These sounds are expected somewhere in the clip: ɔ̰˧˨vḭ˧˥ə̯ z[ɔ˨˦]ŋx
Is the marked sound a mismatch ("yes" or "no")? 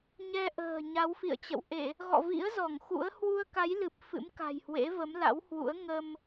yes